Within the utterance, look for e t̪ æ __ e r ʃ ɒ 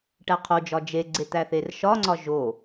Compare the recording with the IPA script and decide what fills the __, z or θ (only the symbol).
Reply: θ